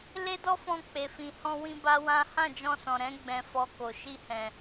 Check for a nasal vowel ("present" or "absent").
present